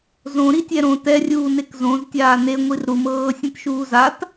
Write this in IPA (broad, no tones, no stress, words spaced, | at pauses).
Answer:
zõ ɾitʲɛɾõ tɛrʲuːnek zõz tʲaːne ŋʷirɾumɤː sʲẽtʃuːzat